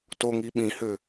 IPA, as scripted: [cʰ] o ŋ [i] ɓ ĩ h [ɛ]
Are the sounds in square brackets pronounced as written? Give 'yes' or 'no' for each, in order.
no, yes, no

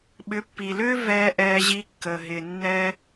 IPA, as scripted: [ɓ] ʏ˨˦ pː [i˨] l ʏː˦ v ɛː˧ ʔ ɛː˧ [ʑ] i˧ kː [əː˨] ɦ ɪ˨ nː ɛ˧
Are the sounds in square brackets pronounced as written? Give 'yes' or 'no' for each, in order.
yes, yes, yes, yes

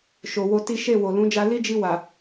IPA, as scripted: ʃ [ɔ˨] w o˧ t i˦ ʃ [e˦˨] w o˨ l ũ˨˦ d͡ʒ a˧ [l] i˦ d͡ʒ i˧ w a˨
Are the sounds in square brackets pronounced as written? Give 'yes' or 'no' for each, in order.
no, yes, yes

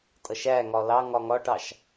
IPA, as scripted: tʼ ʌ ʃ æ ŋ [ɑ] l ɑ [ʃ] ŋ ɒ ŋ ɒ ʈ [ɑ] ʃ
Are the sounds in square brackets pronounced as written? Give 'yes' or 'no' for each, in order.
no, no, yes

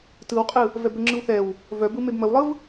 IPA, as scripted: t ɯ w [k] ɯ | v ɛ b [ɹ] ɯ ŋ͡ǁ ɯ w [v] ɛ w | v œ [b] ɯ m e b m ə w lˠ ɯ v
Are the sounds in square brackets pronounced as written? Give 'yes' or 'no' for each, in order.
no, no, no, yes

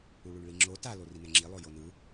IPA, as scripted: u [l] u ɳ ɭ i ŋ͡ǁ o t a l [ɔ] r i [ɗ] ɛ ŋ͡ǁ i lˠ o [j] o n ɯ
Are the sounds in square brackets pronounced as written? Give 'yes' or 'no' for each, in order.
no, no, no, yes

